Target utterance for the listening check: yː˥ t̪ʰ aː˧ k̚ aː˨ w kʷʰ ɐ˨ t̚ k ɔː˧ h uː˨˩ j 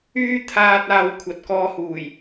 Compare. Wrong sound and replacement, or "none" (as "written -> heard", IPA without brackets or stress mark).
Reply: k̚ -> t̚